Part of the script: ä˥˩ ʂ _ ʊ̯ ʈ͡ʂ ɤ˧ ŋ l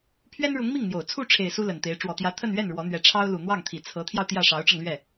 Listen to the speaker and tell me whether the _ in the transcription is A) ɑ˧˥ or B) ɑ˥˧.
A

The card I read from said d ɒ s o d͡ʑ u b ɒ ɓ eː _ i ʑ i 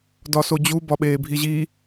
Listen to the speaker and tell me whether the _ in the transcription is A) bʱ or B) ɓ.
A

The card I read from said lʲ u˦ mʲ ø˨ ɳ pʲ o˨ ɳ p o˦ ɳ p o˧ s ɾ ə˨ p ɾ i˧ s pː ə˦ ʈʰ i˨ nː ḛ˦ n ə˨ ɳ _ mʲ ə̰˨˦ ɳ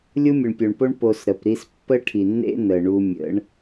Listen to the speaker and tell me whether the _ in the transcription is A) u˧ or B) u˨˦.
A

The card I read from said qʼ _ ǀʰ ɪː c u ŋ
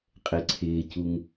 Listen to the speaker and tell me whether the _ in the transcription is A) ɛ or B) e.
A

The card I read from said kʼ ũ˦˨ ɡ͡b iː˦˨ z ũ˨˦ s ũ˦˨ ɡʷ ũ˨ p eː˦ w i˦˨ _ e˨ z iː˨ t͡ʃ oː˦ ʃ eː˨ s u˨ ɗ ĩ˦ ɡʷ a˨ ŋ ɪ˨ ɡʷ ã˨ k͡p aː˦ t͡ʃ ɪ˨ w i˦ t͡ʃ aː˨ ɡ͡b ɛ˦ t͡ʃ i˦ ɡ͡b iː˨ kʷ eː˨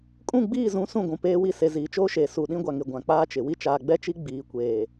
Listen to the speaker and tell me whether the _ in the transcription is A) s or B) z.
A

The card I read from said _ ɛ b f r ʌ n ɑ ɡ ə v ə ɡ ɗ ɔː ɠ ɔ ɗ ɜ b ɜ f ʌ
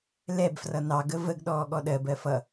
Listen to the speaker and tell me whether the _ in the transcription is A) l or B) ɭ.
A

